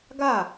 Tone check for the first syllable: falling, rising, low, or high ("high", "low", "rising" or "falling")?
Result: falling